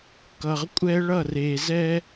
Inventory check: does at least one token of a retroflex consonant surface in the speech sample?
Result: yes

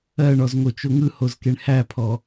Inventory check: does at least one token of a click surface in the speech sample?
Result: no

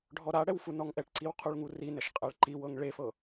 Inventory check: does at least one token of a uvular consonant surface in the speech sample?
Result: yes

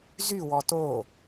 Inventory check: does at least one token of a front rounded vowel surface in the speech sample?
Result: yes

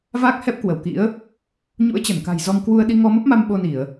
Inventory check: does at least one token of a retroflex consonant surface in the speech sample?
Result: no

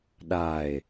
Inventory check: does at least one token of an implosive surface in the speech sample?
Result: yes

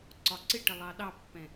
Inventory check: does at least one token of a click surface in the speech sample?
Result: yes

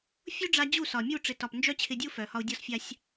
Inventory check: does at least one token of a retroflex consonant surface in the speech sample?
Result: yes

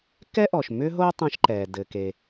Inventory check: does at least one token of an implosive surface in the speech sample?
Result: no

